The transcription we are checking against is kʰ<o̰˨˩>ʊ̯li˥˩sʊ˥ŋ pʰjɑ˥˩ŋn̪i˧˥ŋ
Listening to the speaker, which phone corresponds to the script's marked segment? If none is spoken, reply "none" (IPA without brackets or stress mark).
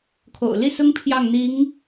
o̰˨˩